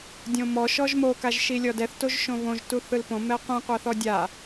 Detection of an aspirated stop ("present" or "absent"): absent